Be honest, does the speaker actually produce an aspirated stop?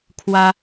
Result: yes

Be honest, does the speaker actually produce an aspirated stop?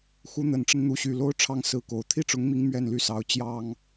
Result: yes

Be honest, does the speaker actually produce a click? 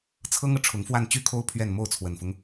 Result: no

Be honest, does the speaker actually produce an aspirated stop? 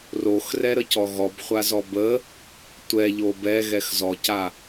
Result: no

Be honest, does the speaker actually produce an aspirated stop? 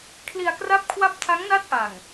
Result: yes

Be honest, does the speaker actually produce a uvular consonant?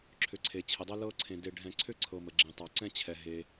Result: no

